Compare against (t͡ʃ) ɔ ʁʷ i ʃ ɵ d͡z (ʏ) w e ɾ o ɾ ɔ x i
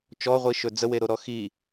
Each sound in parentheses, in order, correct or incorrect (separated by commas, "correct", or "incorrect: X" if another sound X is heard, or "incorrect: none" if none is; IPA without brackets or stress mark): correct, incorrect: ə